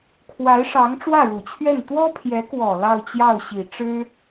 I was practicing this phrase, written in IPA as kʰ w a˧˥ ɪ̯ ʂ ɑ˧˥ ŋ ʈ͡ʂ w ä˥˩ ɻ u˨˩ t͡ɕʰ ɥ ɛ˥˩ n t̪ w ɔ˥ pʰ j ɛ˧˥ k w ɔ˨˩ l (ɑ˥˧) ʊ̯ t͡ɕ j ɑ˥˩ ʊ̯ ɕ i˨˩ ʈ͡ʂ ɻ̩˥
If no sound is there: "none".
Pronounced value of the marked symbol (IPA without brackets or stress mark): ɑ˥˧